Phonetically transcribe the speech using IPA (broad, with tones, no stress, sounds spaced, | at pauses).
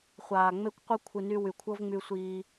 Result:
χʷ aː˨ ŋ͡m e˦ kʷ qʷ ɛ˦ kʷʰ ɨ˨ n y˧ w y˨ kʷʰ ɤ˦ v ŋ͡m y˧ sʷ iː˧